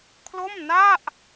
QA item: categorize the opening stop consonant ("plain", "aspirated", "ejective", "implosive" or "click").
aspirated